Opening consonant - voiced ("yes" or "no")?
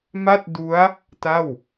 yes